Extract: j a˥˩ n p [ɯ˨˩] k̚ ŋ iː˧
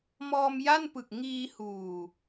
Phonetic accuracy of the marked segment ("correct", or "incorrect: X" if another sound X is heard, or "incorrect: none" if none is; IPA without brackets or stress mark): correct